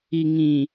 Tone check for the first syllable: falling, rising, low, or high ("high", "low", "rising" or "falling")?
low